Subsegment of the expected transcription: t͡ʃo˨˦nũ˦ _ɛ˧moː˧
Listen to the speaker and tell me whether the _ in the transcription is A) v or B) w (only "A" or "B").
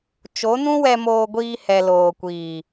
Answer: B